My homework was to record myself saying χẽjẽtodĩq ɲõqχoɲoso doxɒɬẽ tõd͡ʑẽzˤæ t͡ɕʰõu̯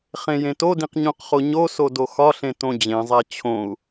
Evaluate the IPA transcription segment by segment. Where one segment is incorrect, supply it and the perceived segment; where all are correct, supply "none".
none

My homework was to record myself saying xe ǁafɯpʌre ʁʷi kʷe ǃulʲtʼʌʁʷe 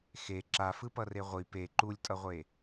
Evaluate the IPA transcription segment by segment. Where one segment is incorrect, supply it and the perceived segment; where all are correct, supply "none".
kʷ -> p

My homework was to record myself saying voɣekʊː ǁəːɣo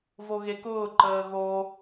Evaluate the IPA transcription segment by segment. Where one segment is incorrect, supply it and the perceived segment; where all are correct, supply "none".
ǁ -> ǃ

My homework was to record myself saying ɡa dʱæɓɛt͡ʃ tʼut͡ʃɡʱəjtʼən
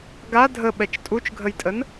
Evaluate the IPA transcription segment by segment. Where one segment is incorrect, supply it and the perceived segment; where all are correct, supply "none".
æ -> ə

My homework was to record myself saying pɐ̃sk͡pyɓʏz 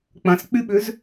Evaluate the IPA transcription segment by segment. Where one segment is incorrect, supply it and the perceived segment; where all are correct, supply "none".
p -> k͡p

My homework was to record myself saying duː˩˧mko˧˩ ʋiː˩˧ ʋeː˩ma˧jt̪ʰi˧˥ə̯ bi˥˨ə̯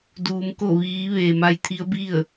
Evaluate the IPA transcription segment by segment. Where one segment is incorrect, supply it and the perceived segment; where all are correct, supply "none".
none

